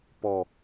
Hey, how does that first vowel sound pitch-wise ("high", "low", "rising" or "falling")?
low